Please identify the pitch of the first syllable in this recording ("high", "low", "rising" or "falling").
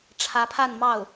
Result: rising